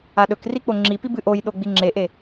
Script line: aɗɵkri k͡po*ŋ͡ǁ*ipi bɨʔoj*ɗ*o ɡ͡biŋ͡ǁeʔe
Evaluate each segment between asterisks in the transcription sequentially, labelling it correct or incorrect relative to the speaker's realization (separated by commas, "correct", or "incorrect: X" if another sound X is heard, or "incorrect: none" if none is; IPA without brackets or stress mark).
correct, correct